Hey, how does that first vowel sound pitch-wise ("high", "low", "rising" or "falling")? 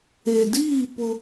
low